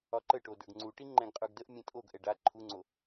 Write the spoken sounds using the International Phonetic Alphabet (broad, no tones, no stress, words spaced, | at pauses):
ɒǃəʈo də˞ɡŋ͡ǀuʈi ŋ͡ǃɛ̃ɡqʼə˞ɡdəʔ mʲɛ̃tʼoɡ ʔɛɖa ǃʰuŋ͡ǀo